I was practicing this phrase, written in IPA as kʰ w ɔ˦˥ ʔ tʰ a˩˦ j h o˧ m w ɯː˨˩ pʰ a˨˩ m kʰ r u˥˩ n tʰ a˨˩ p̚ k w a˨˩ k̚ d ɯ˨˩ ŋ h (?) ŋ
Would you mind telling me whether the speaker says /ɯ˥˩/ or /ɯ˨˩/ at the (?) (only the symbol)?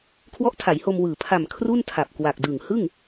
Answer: ɯ˥˩